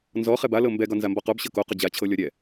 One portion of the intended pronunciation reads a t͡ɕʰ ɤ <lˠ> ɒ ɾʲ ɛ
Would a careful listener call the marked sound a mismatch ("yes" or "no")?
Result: yes